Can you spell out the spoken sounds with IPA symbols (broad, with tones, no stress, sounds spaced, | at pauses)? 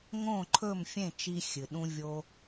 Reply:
ŋ õ˥˩ ǃʰ ɵ˥˩ m fʲ ẽ˥˩ t͡ʃ i˧ xʲ ɨ˩ ɗ ũ˧ vʲ o˧